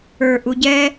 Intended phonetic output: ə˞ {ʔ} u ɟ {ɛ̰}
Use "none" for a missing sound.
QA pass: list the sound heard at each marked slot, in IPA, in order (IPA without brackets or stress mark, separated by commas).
ʔ, ɛ